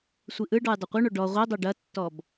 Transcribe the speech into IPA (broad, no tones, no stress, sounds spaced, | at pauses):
sʷ i ʔ ɯ ɖ ɔ j dˤ ɐ qʷ ɯ ɳ o ɖ ɔ ʁʷ i dˤ o ɖ ɐ tː ɔ b